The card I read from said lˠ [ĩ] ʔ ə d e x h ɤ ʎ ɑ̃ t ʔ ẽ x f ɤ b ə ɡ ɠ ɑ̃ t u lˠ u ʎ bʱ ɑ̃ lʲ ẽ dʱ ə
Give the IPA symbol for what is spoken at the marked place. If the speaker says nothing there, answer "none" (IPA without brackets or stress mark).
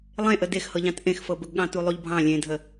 ẽ